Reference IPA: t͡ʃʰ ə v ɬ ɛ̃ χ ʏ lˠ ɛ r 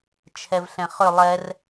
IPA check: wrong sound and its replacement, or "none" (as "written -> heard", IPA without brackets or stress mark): ə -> ɛ